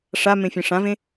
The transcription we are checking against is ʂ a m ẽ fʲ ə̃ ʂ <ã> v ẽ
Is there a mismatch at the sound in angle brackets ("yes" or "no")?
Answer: no